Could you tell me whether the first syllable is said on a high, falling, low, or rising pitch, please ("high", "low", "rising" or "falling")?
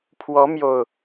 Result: rising